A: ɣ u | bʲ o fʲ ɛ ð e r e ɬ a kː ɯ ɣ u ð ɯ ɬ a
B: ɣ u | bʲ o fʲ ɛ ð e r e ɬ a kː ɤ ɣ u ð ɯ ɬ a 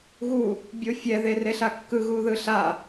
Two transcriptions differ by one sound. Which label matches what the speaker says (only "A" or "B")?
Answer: A